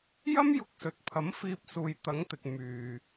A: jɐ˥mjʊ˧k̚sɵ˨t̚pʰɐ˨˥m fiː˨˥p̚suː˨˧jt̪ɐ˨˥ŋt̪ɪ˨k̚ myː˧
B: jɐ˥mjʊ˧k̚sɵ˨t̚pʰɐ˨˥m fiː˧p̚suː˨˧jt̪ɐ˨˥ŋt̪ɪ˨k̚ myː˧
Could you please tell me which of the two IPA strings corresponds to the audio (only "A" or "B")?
B